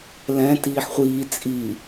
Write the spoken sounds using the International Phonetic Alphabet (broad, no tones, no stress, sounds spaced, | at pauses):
l ɛ̃ t iː ħ χʷ iː t͡sʼ i